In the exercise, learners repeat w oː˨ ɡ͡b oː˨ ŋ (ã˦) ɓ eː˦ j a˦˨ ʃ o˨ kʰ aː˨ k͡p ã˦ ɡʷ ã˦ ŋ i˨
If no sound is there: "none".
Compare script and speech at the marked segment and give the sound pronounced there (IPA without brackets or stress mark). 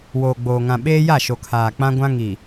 ã˨